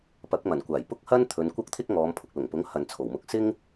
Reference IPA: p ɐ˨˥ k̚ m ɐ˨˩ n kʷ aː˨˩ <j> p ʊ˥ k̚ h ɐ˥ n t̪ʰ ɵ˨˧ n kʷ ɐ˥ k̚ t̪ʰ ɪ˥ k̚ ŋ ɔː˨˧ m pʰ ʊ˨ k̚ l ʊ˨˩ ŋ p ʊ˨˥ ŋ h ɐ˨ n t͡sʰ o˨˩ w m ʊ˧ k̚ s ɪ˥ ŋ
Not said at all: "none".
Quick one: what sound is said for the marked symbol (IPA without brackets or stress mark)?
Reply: j